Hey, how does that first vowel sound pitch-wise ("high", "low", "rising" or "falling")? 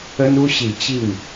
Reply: high